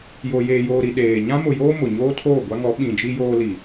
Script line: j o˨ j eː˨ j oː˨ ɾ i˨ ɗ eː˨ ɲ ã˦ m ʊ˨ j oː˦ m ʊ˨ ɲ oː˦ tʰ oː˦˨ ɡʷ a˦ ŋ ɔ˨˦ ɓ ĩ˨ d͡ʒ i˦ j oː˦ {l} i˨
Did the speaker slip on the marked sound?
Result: no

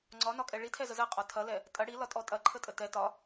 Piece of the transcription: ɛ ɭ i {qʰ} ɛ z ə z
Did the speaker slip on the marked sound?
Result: yes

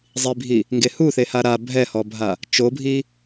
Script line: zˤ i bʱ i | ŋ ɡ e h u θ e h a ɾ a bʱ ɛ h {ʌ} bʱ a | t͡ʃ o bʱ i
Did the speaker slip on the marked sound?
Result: yes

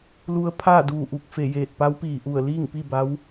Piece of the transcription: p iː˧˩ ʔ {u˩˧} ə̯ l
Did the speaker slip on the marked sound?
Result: yes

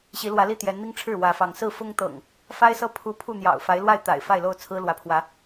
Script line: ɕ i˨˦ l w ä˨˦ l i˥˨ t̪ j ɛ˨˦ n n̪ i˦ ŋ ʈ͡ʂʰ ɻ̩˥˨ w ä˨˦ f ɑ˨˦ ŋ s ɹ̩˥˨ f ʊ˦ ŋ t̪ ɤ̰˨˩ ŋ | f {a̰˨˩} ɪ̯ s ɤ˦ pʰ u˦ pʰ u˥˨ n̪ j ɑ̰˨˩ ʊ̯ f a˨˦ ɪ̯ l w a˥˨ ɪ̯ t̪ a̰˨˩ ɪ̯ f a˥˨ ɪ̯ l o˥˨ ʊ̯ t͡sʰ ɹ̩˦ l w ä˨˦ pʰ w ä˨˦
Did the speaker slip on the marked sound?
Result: yes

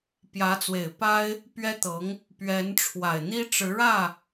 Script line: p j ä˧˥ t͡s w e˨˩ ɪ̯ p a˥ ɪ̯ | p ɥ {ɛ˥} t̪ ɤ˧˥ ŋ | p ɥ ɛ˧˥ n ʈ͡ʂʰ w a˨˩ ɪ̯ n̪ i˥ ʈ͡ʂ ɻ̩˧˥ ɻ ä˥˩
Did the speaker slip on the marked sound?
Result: no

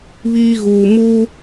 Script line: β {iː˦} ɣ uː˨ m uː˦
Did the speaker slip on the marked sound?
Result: no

